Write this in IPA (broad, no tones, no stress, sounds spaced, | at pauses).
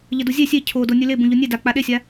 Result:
ʎ ə d u zʲ e sʲ e cʰ o d o nʲ ʉ l e b ũ ʎ o nʲ e d a k͡p a ɗ e sʲ a